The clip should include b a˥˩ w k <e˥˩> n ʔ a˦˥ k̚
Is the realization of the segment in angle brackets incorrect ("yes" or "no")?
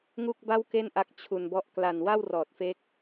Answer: no